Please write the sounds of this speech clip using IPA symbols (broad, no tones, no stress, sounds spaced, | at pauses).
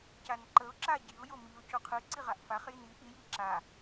c a n ǃ ə ʊ̯ ǁ a ɟ i ʊ̯ j o m i ʊ̯ c o qʰ ɯ ǀ i ʁ a ʔ f a χ j i n i ʔ i j i ǁ a